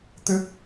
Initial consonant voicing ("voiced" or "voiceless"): voiceless